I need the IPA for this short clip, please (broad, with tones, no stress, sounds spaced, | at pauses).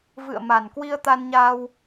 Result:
v ɨ̰˧˨ ə̯ m a˨˩ n k w i˧ ə̯ t̪ a˧ n ɲ aː˧ w